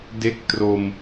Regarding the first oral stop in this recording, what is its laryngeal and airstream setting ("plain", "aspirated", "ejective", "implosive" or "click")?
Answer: plain